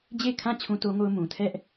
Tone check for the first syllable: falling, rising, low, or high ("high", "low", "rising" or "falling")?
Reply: falling